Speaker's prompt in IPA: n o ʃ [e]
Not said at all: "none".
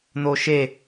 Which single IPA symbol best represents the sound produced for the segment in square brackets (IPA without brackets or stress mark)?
e